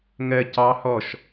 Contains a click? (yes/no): no